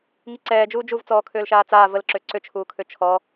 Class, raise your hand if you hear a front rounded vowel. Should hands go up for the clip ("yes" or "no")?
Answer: yes